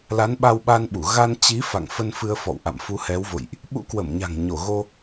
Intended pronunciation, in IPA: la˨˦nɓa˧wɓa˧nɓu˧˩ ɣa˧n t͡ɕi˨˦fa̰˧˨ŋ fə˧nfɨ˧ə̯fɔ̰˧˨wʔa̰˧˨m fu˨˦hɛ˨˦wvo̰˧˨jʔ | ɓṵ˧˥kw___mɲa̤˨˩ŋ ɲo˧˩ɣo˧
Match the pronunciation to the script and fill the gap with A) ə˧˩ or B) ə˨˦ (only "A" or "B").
A